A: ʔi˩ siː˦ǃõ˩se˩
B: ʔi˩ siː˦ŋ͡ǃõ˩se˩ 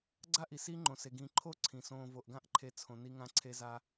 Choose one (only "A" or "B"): B